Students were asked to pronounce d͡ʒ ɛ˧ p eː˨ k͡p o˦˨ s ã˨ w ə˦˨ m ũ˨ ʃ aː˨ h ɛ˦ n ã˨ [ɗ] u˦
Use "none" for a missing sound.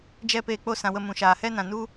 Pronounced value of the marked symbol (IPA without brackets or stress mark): n